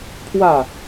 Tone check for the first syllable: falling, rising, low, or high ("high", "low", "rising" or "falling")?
falling